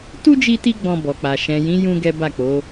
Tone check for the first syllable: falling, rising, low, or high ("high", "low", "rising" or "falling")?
high